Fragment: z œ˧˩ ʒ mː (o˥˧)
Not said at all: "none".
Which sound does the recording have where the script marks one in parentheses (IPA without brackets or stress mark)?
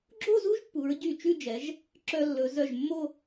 o˥˧